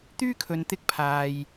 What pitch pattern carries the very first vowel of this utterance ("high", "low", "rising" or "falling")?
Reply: high